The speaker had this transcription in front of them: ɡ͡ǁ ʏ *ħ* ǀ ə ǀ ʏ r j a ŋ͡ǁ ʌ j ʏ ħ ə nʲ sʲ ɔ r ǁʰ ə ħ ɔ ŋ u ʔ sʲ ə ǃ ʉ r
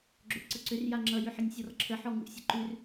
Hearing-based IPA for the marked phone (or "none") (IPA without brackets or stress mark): ʔ